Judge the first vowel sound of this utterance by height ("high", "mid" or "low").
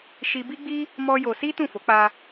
high